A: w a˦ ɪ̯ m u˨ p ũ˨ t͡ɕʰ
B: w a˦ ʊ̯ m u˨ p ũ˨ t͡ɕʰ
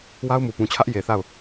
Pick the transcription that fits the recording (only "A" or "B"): B